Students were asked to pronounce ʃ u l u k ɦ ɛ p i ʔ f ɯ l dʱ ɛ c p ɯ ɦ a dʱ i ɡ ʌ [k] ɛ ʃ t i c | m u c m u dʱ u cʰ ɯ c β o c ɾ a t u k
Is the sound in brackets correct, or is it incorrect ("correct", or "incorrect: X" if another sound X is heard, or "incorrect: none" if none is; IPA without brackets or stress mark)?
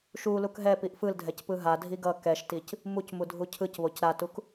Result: correct